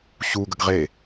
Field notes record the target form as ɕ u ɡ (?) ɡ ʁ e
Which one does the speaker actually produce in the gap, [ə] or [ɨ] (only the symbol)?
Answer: ə